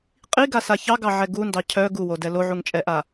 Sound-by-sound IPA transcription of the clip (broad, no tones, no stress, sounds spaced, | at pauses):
qʼ i ɡ a s a ç ɑ ɡ ɑ ʕ ɛ ɡ u n d ɑ cʰ œ ɡ u w o d ɛ l o ʕ u ŋ t͡ʃʼ ɛ ʔ a